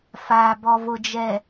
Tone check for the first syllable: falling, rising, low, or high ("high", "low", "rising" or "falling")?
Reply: low